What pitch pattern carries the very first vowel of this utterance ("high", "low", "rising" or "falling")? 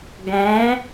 rising